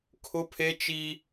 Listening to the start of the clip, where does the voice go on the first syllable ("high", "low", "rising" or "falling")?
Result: high